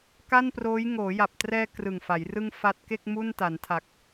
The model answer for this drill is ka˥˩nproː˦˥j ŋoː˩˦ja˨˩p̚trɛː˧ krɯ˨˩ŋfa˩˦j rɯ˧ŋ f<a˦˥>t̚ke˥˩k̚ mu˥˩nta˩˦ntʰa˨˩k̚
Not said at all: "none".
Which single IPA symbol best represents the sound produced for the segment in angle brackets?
a˦˥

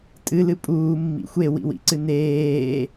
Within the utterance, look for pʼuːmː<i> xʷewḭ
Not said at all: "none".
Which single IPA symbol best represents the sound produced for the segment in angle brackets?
ḭ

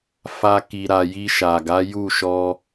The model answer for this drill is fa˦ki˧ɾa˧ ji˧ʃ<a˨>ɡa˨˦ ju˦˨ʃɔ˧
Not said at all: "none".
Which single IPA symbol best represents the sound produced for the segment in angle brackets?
a˨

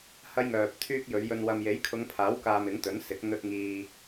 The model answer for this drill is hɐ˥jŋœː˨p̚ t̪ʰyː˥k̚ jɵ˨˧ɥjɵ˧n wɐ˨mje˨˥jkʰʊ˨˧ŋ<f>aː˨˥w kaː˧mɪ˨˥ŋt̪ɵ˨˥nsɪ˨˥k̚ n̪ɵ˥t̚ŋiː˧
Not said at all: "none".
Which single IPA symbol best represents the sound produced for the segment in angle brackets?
pʰ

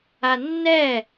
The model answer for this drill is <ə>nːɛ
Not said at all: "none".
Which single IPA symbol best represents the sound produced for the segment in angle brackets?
a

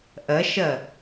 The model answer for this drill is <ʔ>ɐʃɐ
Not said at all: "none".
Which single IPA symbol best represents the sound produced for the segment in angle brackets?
ʔ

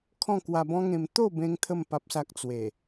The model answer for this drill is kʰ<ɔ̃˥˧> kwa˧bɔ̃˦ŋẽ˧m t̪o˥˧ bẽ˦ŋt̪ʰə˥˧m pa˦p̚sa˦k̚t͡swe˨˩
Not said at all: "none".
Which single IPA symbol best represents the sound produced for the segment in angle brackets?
ɔ̃˥˧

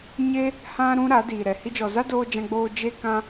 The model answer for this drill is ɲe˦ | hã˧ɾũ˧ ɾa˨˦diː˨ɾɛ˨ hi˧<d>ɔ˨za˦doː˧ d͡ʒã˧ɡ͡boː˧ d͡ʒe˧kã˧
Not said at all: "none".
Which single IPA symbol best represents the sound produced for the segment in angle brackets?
d͡ʒ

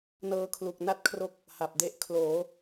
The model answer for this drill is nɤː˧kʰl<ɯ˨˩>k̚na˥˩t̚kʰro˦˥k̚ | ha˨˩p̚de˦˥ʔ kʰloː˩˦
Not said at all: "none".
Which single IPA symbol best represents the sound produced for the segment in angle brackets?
u˨˩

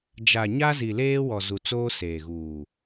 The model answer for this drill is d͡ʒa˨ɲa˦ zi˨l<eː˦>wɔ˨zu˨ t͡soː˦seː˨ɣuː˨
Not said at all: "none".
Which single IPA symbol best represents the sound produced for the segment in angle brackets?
eː˦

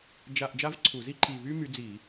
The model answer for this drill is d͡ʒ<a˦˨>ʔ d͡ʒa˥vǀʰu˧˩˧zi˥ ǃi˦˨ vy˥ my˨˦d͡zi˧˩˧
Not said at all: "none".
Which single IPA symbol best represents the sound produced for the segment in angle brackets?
a˦˨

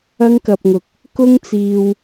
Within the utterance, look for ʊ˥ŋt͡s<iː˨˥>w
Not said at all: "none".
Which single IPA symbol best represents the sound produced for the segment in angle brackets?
iː˧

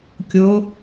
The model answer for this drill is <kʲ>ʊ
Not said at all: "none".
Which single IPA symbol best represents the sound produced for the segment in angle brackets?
kʲ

